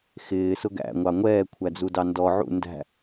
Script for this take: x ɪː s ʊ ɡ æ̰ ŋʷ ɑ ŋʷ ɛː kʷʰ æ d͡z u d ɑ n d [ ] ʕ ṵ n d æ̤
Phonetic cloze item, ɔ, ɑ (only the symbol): ɔ